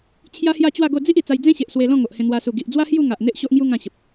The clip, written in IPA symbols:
t͡ɕʰ j a˦ h j a˥˧ t͡ɕ w a˥˧ ɡ o˥˧ d͡z i˦ ʔ i˨˩ t͡s a˧ j d͡z ẽ˦ ɕ e˨ ʔ s w e˧ l ɔ̃˥˧ ŋ o˨ ʔ h ẽ˧ n̪ w a˧ s u˨˩ ɡ i˨ ʔ d͡z w a˦ h j u˥˧ ŋ a˨ ʔ n̪ e˦ ʔ ɕ o˦ ʔ ŋ j u˦ ŋ ã˥˧ ɕ ə˨ p̚

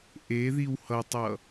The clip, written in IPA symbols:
ʔ e ð i w h ʌ tˤ ʌ

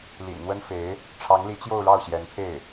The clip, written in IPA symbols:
l ḭ˨˩ n n̪ w ə˥ n f e˧˥ ɪ̯ | ʈ͡ʂʰ ɑ˧˥ ŋ l i˧˥ t͡ɕ j o˥˧ ʊ̯ ɻ ɑ˥˩ ʊ̯ ɕ j ɛ˧˥ n pʰ e˥˩ ɪ̯

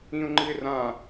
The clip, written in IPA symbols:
ĩ ʊ̯ ŋ͡ǃ ɨ ɪ̯ r ã

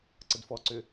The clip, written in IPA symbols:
ǀ ə d f ɔ ǀ ʏ

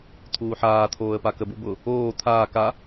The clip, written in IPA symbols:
t̪ʰ uː ħ aː t̪ʰ oː ə̯ p a k ə b u b ʊ | oː t̪ʰ aː k a

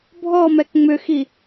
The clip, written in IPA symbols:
bʱ ɔ m ɛ k ŋ͡m ʏ x i

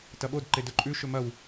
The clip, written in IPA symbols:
t ɐ ɓ o d ǃ e d ɵ ǃʼ ʉ ʃ ɵ m ɐ w

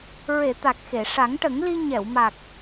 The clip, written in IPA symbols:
ɹ e˨˩˨ t̪ a˨˩ k̚ x e˨˩˨ ʂ a˨˩˦ ŋ ʈ ə˨˩˦ ŋ l i˧ ɲ ɛ˨˩˨ w m a˨˩ k̚

